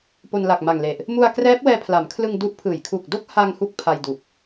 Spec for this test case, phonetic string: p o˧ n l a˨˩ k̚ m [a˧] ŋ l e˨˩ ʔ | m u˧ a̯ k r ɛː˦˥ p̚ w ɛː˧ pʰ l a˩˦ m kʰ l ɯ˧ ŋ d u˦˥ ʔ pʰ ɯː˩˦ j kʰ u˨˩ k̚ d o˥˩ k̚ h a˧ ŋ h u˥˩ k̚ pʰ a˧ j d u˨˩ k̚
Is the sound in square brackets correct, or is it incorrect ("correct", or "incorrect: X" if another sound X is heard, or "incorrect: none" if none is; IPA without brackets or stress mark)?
incorrect: a˨˩